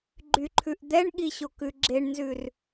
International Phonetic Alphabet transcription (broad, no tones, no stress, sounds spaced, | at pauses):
ɡ͡ǃ y ǃʰ ʉ ʔ d̪ ɛ ɳ ɠ i ɕ o k ʉ ɡ͡ǁ e ɳ n z ʉ r